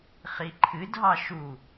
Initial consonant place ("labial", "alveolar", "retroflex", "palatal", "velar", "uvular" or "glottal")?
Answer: uvular